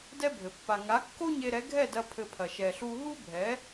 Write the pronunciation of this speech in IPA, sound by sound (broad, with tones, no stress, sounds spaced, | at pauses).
d ɛ˦ bʱ ɘ˨ pː a˨ ŋ a˨˦ kː o˦ ɲ e˧ ɾ ɛ˨˦ ɡʱ ɛ˦˨ d ɐ˧ pʰ ɘ˧ pʰ ɐ˨ ʃ ɛ˨ ɬ u˧ ɦ u˦ bʱ ɛ˨˦